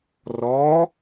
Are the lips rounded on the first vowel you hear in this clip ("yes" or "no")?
yes